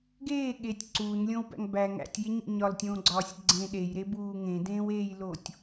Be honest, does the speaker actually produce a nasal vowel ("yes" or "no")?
yes